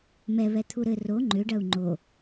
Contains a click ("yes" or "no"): yes